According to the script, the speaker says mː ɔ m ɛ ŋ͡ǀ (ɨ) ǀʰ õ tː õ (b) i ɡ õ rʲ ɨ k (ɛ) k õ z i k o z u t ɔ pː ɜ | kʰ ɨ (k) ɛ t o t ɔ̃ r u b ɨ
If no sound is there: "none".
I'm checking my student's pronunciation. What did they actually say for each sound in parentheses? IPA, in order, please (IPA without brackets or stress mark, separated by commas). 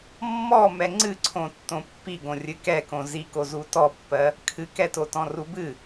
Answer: ɨ, pː, ɛ, k